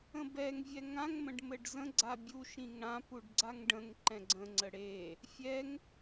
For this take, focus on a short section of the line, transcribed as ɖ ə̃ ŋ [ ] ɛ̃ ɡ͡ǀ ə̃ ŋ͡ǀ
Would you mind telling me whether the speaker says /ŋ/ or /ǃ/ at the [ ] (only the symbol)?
ǃ